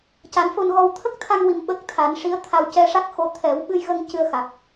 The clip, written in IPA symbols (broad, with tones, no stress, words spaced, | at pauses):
ca˨˩˦nfo˧nɣɔ˧w t̪ʰə˦˥k̚t̪ʰa˧ŋ wi˧mɓə˦˥k̚ t̪ʰa˨˩˦nʂi˧˥ə̯ t̪ʰa˧wcɛ˧ʂa˦˥k̚xo˧ t̪ʰɛ˨˩˦wɓɨ˧jɣə˧ŋ cɨ˧ə̯ xa˨˩k̚